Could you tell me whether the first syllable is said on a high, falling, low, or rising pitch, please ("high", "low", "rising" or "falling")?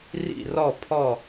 falling